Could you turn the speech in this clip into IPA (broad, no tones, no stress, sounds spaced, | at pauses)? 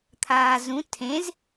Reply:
t̪ʰ aː z ũ tʰ ẽ z